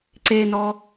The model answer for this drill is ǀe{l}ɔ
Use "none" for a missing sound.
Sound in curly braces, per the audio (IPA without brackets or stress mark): n